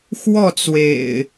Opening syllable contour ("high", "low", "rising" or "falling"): falling